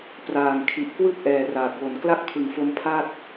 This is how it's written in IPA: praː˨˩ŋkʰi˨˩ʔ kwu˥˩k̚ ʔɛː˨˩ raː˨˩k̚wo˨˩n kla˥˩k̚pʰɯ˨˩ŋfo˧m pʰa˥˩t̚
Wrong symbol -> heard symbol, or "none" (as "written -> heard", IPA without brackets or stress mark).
u˥˩ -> ɯ˥˩